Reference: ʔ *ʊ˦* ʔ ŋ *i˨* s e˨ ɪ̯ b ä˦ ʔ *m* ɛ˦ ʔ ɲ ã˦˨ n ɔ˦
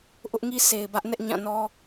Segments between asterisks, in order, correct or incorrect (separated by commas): correct, incorrect, incorrect